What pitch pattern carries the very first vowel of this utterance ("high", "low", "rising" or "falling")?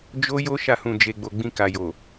high